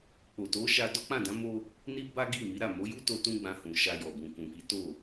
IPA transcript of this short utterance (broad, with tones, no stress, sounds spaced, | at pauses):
k͡p o˨ t o˨˦ ʃ a˧ d ɔ˦ k͡p ã˦˨ d ã˨˦ m o˦ | n i˦ b a˦ ɡ i˦˨ m i˨˦ ɾ a˦˨ m o˨˦ j u˦ t o˧ t ũ˦ ɡ͡b ã˧ h ũ˨ ʃ a˧ j ɔ˨ b ũ˨ k ũ˨ k i˨˦ t o˦˨